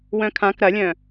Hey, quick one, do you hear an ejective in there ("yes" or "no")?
no